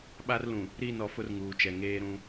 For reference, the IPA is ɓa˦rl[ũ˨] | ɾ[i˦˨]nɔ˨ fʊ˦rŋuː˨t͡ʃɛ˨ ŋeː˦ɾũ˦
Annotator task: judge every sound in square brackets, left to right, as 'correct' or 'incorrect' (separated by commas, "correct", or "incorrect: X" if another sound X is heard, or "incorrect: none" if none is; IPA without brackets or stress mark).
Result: correct, correct